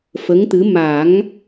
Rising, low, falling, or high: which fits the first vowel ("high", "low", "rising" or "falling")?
rising